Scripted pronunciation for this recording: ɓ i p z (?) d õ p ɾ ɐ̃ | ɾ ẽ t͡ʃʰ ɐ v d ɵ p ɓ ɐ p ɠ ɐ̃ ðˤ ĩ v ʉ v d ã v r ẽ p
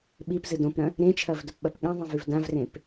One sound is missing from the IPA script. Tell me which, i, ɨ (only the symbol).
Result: ɨ